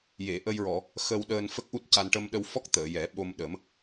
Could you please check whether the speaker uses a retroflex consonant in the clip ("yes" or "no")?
yes